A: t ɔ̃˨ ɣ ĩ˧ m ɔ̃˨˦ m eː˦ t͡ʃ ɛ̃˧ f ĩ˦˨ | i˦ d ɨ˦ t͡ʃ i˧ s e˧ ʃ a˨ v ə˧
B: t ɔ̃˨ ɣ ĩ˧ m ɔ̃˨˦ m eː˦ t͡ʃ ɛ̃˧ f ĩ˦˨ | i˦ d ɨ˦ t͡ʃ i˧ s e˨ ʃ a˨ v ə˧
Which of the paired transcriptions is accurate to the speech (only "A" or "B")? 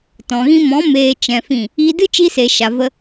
B